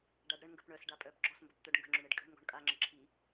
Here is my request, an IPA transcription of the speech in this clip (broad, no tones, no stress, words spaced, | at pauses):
ɖaɖɾəɳŋɡəp ɳœsɖa pʼœpɡ͡ǁɔsmbəp t̪œɖŋɡə̤ŋ͡ǁʊɳ eɖkʼə̤ɳŋɡɔ̤ɳ kʼaŋ͡ǁə ǁʰi